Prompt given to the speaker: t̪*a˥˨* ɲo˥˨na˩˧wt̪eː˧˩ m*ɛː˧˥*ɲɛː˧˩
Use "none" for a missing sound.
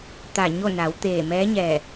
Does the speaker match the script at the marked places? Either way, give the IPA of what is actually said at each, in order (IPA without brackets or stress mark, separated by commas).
a˧˩, ɛː˧˥